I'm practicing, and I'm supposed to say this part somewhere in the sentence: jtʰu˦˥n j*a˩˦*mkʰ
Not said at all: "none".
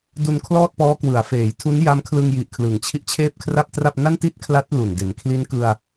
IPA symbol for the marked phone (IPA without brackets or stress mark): a˦˥